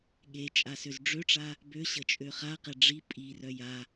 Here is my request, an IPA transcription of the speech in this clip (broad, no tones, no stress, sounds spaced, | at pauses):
ɠ e t͡ʃʼ a s ø z ɖ͡ʐ ø ʈ͡ʂ a | b ø ɕ ə t͡ʃʼ ø χ a q ɛ ɖ͡ʐ i pʼ i r œ j a